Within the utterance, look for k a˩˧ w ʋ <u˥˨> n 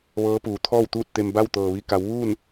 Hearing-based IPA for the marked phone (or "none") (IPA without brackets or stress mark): uː˥˨